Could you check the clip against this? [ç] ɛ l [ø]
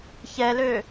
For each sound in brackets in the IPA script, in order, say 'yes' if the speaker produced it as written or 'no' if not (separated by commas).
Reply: yes, yes